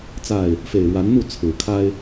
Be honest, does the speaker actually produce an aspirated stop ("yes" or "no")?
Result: yes